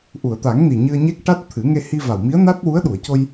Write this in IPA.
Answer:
ʔ u˨˩˨ ə̯ t̪ a˨˩˦ ŋ n i˨˩ ɲ ɨ˧ ə̯ ɲ e˦˥ k̚ ʈ a˦˥ t̚ t̪ʰ ɨ˨˩˦ ŋ e˧ h i˧ v a˨˩ w m i˧˥ ə̯ n a˦˥ t̚ w u˧˥ ə̯ ɗ u˨˩˨ ə̯ c o˧ j

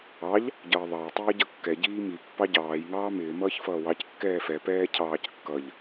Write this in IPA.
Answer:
ɑ ʎ | ɟ ʌː ðˤ ɑ j tˤ iː ɟ ʌ kː ɛ ɟ iː m i pː ɑ ɟ ɑː j ŋ ɑː m ɪː m ʌː ç f ʌː w ɑ c kː ɛː f ɛ p ɛː cʰ ɑː c kː ʌ ʎ

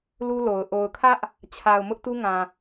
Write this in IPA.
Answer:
l u˦ l o˨ ʊ̯ ʔ o˨ ʊ̯ kʰ ä˦ ʔ | t͡ɕʰ a˨ ʊ̯ m ʊ˦ ʔ t u˦ ŋ ã˨

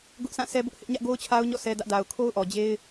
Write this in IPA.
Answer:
ɡ ʊ˦ ʔ s ã˦˨ s ɛ˦ b ʊ˦ ʔ h ɪ˦ ʔ ɲ ä˦ ʔ ɡ o˦ ʊ̯ t͡ɕʰ a˦ ʊ̯ ɲ ɔ̰˦˨ s ɛ˦ d ä˦ ʔ d a˨ ʊ̯ kʰ o˦ ʊ̯ ʔ ɔ˨ d͡ʑ e˦ ɪ̯

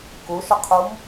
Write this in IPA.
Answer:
k u ʃ ə qʰ u m

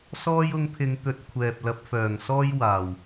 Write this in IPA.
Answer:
s ɔː˥ j ʊ˧ ŋ pʰ ɪ˨˧ ŋ t̪ ɵ˨˥ t̚ kʷʰ ɛː˨ p̚ l ɐ˧ p̚ f œː˨˩ ŋ s ɔː˥ j w aː˨˩ w

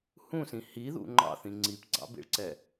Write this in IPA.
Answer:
h ũ s ĩ h i ð ṵ ŋ͡ǃ ɑ̰ θ ĩ ŋ͡ǀ i p ɡ͡ǀ ɑ̰ b ḭ ɭ ǀ ɛ

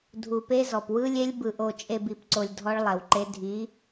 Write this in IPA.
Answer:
dʱ u˨ p e˦ z ɔ˨ p w ɯ˦ lʲ e˦ lʲ b ɯ˨ ʔ o˨ t͡ʃʼ e˨ b i˨ p ǀ o˨ lʲ dʱ ɔ˦ ɭ lˠ ɛ˨ w ǃ e˦ dʱ i˨˦

